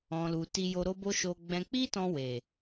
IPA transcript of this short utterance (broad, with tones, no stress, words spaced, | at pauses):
ɔ̃˨lu˨ ti˧jo˧ ɾo˧bo˧ ʃo˧ ɡ͡bɛ̃˧ k͡pi˦tɔ̃˧we˨